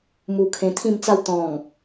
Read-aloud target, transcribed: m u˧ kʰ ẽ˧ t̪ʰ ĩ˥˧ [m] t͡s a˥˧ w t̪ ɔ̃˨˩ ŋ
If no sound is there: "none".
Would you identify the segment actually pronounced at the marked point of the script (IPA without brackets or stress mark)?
m